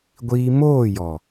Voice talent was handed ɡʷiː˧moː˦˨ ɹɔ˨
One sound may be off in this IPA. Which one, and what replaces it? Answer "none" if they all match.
ɹ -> j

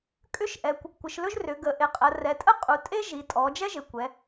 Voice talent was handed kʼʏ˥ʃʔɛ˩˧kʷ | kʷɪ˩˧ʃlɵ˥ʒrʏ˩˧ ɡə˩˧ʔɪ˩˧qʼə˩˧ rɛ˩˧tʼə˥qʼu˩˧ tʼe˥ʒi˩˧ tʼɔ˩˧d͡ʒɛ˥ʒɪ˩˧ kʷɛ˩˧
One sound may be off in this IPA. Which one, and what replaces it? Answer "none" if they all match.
none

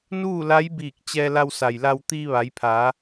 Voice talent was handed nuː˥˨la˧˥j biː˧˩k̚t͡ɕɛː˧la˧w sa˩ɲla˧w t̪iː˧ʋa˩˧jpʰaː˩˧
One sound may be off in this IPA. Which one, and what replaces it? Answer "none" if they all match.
ɲ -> j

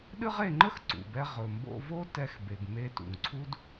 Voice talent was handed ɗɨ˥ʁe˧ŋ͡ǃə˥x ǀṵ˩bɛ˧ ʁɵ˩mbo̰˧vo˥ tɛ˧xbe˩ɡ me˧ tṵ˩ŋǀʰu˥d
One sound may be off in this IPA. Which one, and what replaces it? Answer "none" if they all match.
none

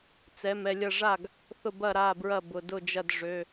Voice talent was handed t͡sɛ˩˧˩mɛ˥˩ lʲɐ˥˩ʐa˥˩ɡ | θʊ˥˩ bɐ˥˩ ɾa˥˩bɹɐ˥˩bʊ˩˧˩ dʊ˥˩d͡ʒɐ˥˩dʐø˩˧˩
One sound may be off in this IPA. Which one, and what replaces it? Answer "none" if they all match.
none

